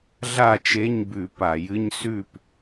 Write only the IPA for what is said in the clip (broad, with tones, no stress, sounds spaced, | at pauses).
ɮ a˥˨ t͡ʃ e˧˥˧ ɲ b ʉ˧˩˧ p a˧˩˧ j ɨ˧˥˧ ɲ s ʉ˥˨ p